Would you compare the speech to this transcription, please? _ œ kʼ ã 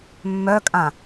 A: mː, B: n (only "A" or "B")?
A